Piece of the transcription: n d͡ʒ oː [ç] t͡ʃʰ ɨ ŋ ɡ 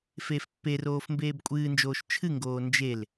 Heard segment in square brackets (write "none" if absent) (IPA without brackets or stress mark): ʃ